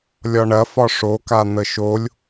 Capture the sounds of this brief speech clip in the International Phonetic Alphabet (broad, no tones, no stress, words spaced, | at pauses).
lʲɒɳɐfɒ ʂo kan̪əʃolʲ